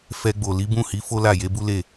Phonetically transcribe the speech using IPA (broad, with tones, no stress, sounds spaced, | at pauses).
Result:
f ɛ˧ ɡ͡b o˨ l i˨˦ b ũ˦˨ h i˨˦ f o˦ l a˦˨ j e˨˦ b u˦ l e˦˨